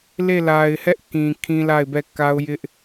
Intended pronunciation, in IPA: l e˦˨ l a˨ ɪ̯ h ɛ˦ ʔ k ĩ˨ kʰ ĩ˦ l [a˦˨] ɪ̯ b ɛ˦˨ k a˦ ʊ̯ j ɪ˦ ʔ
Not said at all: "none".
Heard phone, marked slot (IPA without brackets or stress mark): a˦˨